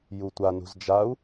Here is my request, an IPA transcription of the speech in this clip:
jutʷa nṳzd͡ʒau̯

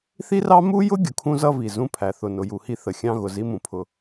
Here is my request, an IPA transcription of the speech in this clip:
θi˦rɑ˦ mu˦jʊ˦ ɡʲʊ˨kʰũ˦zʌ˦vi˨ zũ˦pʰæ˨ θʊ˨nʊ˨ju˨hi˦ θə˨ xʲɑ̃˦ɣʊ˨zi˦mũ˨ pʰʊ˦

